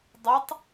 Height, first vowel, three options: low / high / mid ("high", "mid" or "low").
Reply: mid